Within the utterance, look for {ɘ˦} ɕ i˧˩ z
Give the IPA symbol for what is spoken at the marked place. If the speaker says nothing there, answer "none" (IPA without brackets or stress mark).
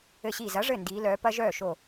ɘ˧˩